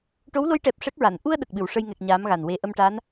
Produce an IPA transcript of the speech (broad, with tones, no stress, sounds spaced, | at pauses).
ʈ o˧˥ w l o˧˥ j ʈ ɛ˨˩ p̚ ʂ ɛ˦˥ k̚ ɹ a˨˩˨ n ʔ u˧ ə̯ ɗ ə˨˩ k̚ ɓ ɨ˨˩˨ w ʂ ə˧ j ŋ ɛ˨˩ k̚ ɲ aː˧˥ m ɣ a˨˩ n w e˧ ʔ ə˧ m ʈ a˧˥ n